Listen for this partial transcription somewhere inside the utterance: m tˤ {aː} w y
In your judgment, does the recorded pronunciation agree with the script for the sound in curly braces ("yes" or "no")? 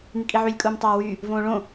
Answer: no